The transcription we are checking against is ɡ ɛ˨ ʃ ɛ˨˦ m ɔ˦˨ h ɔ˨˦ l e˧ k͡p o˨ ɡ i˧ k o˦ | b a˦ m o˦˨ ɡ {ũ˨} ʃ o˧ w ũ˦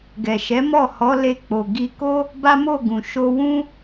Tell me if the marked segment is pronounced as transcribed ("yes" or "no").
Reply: yes